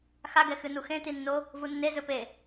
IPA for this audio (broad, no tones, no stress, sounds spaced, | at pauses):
x a ɡ ɛ x ɨ n u x ẽ t i nː o | v u nː e z ɵ p e